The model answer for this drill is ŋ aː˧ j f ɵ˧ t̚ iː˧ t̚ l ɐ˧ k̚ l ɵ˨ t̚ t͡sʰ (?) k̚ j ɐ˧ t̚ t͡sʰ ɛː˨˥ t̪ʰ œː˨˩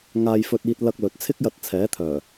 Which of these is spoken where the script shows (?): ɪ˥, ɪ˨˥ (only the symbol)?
ɪ˥